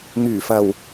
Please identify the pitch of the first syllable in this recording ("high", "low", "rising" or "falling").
low